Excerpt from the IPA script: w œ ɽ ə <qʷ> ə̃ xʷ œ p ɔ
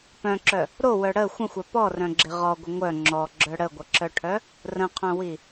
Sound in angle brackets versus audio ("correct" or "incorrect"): incorrect